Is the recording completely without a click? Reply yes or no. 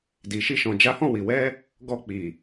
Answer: yes